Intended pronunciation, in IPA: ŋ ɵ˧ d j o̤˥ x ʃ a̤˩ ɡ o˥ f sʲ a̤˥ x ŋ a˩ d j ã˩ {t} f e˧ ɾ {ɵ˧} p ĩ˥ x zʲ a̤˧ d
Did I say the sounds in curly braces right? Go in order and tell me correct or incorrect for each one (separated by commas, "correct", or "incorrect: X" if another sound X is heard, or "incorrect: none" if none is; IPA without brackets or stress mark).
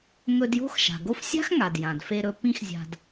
incorrect: d, correct